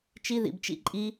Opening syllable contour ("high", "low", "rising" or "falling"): high